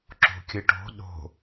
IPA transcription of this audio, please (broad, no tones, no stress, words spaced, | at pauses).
ǁo̤kʲɯʈo̤ ɗo̤